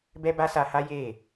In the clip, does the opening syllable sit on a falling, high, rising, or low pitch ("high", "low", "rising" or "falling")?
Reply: high